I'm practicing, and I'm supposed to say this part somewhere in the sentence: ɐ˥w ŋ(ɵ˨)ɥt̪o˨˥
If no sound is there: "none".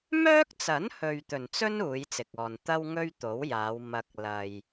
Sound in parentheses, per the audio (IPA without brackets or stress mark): ɵ˥